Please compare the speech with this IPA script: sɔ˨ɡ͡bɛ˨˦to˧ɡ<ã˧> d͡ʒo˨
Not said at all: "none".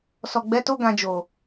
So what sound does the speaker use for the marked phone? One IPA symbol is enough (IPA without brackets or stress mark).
ã˨